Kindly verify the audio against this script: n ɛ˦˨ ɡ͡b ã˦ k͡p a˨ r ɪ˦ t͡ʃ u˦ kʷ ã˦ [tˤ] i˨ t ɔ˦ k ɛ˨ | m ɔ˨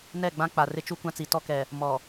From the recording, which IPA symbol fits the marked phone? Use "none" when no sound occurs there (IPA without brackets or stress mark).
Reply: t͡s